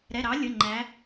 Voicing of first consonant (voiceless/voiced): voiced